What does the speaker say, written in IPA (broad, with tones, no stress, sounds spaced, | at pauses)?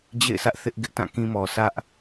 d͡ʑ ḛ˦˨ ɪ̯ sʰ ä˦ ʔ θ ɪ˦ ʔ ɡ ɪ˦ ʔ t ã˦˨ k ĩ˦ m ɔ˨ s ä˦ ʔ